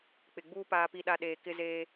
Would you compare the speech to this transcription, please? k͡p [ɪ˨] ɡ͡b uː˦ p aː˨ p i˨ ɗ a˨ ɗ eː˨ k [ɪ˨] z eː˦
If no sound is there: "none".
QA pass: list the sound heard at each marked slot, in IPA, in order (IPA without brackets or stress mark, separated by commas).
ɪ˨, ɪ˦